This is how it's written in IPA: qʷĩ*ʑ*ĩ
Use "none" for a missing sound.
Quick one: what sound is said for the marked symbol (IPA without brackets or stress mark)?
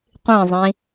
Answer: zˤ